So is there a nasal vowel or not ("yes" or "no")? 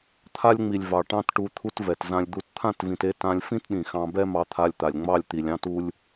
yes